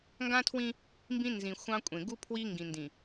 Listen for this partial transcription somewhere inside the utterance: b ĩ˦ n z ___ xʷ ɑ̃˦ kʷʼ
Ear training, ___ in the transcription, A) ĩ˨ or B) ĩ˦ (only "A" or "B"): A